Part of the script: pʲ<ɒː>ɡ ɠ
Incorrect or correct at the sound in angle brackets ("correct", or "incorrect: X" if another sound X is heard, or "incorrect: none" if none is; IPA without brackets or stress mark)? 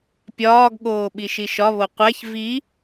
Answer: correct